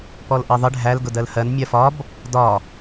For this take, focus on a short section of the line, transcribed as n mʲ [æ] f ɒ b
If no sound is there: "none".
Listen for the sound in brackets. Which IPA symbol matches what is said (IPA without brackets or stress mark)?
ɜ